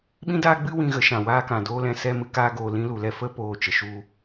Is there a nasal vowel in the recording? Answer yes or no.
yes